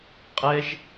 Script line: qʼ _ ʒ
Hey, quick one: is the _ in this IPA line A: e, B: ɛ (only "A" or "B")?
B